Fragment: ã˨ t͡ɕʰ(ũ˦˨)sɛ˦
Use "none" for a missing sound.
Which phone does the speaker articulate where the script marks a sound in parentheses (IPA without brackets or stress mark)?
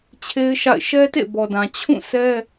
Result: ũ˦˨